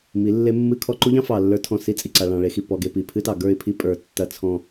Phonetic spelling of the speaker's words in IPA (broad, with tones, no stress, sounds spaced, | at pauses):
m i˨˦ lː e˦ mː ɨ˦ kʰ ɔ˦ ǃ u˦ ʎ ɑ̃˦ f ɑ˨ lː ə˞˦ tʰ ɔ̃˦˨ s i˦ t͡sʼ i˨ ǀ a˨ ɭ ɑ̃˨ ɭ e˨˦ x i˨ p ɔ˨ ɡ e˨ p i˨ pʰ ɨ˦ t ɑ˨ ɡ ə˞˦˨ ɪ̯ pʰ i˦ pʼ ə˞˨ tː ɐ˦ t͡sʰ ɔ̃˦